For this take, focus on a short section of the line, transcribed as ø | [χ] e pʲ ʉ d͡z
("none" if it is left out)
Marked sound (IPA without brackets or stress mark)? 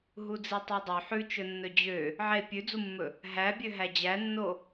ʕ